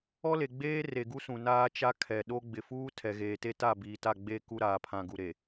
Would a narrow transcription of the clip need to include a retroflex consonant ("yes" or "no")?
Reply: no